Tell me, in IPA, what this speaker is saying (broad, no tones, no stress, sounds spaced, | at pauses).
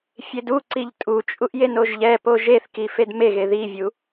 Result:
fʲ e d u ǀ i ʎ tʼ u t͡ʃʼ u ʔ j e n o ʒ ʎ ɛ p o ʒ e θ k i f e d m e ɣ e ð i vʲ u